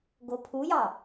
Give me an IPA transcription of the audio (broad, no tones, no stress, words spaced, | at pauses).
ɡopʰujɑ